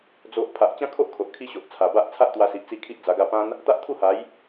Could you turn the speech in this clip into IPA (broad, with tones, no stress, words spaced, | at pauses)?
d͡zo˨ʔ pʰa˨ʔt͡ɕã˦kʰo˦ʔkʰo˨ʔ kʰi˦ɕo˨ʔt͡sʰa˨˩ ba˦ʔ t͡sʰa˦ʔt̪wa˧si˨ʔ t͡si˥˧kʰi˦ʔd͡za˧ɡa˥˧ pã˦n | t̪a˦ʔt̪ʰu˥˧ha˨˦j